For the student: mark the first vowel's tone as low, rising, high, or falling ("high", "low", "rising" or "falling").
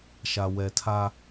low